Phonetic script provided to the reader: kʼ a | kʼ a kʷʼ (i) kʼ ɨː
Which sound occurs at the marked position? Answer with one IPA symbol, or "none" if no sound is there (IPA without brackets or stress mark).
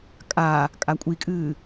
i